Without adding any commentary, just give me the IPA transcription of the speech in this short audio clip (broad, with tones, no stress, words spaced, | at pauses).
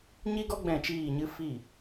ɲi˦ɡɔ˦ ɡ͡bɛ̃˦˨t͡ʃiː˦˨ɲɨ˦ fi˦˨